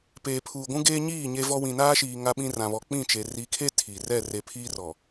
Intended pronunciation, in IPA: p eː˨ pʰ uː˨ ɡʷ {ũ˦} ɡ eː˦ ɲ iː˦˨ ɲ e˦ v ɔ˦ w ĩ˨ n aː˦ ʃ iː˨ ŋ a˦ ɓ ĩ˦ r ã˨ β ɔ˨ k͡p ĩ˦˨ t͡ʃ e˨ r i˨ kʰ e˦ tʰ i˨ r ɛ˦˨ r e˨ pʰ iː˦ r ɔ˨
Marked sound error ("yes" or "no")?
no